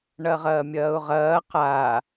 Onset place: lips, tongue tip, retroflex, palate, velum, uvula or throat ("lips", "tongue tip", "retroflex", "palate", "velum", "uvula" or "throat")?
retroflex